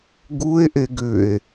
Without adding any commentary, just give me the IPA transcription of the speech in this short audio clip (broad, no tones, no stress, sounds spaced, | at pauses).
ɡ u e̯ ʔ e ɡ ʏ e̯